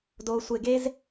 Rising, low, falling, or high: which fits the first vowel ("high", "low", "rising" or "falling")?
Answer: low